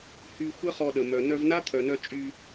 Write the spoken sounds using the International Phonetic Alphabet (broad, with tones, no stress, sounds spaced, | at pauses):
h y˧ xʷ ə˦ χ ɔ˧ ɗ ə˨ m œ˨ n œ˧ v n a˦ t̪ʰ œ˨ n œ˧ t͡ʃʼ y˧